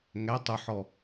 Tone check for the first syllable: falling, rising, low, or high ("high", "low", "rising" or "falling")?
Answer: rising